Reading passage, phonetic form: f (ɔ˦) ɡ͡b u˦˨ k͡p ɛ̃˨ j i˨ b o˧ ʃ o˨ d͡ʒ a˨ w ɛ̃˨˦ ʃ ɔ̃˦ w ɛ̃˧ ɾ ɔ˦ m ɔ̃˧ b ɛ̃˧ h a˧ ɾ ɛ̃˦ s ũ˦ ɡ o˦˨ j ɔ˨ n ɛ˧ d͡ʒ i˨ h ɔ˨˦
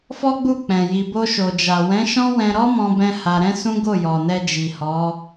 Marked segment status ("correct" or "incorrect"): correct